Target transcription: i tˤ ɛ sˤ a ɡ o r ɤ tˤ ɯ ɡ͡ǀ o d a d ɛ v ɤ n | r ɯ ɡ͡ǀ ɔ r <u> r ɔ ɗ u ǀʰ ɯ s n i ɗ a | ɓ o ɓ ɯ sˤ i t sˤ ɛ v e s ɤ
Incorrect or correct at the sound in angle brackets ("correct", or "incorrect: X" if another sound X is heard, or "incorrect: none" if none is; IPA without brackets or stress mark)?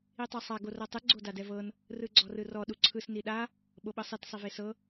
incorrect: ɯ